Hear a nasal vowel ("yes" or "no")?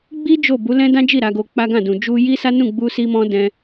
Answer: yes